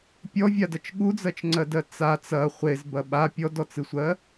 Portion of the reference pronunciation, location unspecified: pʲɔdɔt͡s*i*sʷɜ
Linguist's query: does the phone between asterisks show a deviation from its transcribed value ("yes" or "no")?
yes